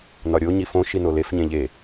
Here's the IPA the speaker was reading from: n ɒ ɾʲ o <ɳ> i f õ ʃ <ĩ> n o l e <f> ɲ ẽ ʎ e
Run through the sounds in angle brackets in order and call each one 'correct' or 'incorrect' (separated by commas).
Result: incorrect, incorrect, correct